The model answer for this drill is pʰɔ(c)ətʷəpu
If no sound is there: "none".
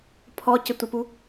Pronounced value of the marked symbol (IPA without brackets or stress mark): c